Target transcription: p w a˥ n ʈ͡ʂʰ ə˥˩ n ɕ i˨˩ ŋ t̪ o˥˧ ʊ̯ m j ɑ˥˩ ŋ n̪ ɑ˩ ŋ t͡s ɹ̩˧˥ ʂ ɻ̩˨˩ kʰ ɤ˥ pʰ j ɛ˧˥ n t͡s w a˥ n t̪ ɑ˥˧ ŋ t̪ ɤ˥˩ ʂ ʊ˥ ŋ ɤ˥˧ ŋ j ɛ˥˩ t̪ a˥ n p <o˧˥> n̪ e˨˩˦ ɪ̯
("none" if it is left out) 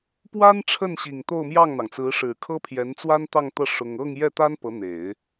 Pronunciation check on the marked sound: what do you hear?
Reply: ɤ˧˥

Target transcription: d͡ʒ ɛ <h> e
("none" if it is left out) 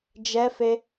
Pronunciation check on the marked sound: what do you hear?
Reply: f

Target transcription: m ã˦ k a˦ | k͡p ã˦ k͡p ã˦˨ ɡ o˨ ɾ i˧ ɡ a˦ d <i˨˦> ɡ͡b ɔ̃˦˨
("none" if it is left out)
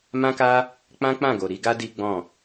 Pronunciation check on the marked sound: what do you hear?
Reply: i˦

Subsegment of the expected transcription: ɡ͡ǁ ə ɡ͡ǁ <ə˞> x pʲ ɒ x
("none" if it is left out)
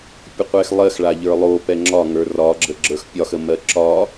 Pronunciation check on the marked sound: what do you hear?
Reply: ə˞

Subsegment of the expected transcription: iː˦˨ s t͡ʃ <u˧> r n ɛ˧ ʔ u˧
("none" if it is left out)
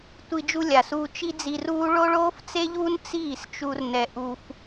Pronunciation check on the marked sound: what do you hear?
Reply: u˧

